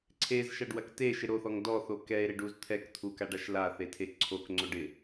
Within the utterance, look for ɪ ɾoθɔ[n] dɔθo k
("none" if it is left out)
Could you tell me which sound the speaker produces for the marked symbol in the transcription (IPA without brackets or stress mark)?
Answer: ŋ